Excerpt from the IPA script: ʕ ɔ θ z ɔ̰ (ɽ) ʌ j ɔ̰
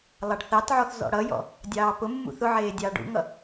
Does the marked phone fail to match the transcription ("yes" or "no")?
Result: no